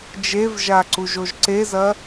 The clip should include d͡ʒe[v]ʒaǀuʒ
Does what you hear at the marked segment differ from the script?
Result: no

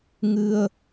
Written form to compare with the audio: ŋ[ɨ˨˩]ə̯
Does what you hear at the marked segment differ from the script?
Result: yes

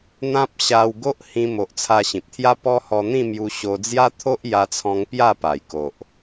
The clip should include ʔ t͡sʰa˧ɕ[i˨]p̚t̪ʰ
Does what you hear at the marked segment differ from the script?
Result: yes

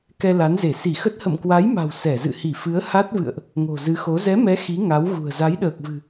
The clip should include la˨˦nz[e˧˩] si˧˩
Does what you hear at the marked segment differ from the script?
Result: no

